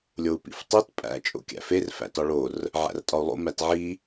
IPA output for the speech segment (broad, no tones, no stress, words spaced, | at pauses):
lʲou̯pḭftˤit pʼæ̰ t͡ʃʼo̰kʲæ̰fer fæ̰tɒɭor | ʕæ̰rtʼɒu̯lˠo̰ mætʕi